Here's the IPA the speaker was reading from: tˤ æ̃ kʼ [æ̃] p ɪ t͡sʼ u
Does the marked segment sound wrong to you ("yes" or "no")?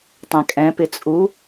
yes